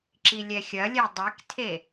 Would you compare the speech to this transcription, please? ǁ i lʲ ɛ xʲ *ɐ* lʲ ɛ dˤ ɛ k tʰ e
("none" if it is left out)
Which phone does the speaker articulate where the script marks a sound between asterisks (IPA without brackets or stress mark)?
ɐ